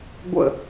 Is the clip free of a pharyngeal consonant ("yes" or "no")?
yes